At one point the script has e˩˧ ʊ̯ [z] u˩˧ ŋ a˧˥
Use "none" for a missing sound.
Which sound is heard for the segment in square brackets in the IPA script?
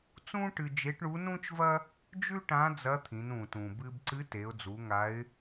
d͡z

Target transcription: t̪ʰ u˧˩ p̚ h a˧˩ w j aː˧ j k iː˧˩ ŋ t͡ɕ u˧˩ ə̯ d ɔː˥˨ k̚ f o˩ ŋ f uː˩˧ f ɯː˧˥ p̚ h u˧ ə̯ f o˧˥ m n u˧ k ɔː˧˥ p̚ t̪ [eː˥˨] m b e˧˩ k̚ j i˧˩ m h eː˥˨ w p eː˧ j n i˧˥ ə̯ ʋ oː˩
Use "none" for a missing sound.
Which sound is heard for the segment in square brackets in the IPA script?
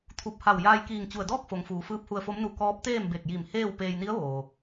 eː˥˨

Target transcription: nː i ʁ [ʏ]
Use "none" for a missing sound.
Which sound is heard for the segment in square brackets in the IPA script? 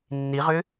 ʏ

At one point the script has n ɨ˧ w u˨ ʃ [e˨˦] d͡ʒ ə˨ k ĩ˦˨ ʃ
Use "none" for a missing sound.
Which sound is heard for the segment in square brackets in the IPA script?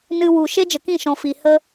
e˦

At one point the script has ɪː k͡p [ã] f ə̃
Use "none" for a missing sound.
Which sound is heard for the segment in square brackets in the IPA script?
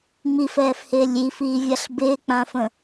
ã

